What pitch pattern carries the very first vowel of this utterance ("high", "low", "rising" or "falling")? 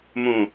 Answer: low